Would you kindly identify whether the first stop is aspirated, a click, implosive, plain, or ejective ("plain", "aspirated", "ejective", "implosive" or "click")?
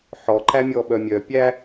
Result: click